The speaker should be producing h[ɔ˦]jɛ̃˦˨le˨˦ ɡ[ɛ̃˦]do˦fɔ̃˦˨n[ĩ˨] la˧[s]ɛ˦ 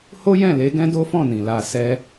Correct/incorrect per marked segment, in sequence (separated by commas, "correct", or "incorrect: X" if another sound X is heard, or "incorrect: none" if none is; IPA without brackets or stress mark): incorrect: o˦, correct, correct, correct